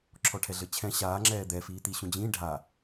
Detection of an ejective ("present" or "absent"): absent